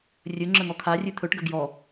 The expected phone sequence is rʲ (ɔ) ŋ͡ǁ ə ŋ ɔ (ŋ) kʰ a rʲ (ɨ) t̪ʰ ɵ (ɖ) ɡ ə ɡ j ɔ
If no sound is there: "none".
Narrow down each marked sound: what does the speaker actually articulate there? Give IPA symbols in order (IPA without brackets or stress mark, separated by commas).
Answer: ɵ, none, ɨ, ʈ